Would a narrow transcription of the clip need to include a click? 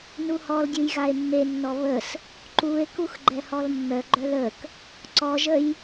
yes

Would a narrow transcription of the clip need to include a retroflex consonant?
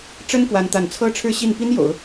yes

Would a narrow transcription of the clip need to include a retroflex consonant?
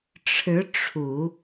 yes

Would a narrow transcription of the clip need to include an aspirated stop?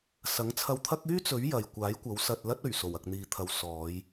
yes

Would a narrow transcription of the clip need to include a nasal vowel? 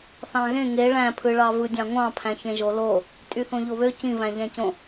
yes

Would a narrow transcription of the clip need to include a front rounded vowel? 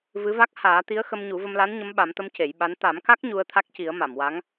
no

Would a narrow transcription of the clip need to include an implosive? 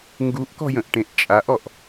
no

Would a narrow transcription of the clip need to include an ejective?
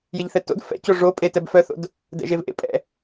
yes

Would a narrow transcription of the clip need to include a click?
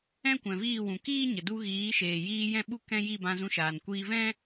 no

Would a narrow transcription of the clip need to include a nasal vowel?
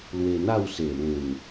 yes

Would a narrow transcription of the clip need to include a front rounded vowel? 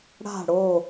no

